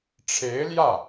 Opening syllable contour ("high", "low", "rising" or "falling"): rising